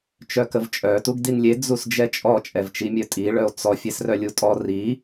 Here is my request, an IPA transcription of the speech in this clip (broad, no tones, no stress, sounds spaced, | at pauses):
t͡ʃ œ k ə v t͡ʃʼ œ t u ɡ d i n lʲ e d͡z u s d͡ʒ ɛ t͡ʃʼ ɔ t͡ʃʼ ɛ v t͡ʃ i mʲ œ tʼ i ɭ œ o̯ t͡s ɔ fʲ ɛ s r œ lʲ u tʼ ɔ r i